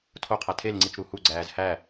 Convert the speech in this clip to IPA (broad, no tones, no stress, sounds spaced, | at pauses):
tʰ o qʰ æ tʰ e l ŋ͡ǀ i t͡ʃ ɾ u h u ɡ͡ǀ æː z h æ